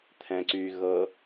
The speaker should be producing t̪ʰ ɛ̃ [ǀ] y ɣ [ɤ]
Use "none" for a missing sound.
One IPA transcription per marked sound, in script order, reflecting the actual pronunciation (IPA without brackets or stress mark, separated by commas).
ǀ, ɤ